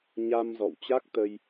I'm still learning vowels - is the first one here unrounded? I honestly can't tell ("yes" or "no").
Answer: yes